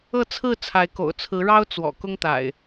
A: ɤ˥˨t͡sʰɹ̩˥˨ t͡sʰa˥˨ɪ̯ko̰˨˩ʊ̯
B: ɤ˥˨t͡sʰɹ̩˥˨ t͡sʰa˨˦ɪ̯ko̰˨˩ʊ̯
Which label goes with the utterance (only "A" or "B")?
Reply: B